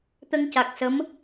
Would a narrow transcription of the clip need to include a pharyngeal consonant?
no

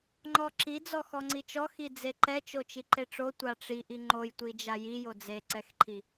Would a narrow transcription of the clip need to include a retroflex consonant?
yes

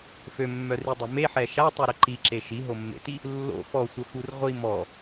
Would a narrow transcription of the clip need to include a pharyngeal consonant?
yes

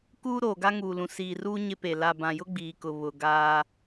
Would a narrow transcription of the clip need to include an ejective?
no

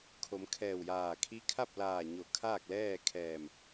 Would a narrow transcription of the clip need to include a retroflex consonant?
no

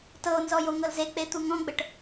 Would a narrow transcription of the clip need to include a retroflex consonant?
yes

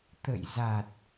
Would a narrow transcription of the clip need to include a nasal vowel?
no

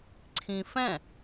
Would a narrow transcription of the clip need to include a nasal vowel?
yes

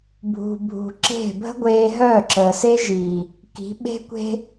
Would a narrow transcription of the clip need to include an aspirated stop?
no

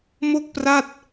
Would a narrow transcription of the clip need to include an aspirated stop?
no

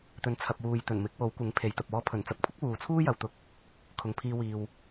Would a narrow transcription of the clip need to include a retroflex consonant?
no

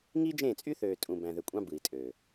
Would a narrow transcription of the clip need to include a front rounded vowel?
yes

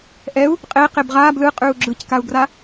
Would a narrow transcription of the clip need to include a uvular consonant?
yes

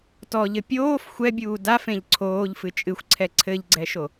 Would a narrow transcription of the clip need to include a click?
yes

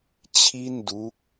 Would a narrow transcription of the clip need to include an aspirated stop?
yes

